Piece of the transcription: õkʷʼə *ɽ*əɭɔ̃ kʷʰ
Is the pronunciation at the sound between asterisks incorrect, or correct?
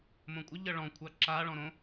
incorrect